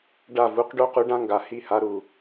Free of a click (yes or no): yes